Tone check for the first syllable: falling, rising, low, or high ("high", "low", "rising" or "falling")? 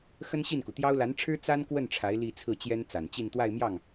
high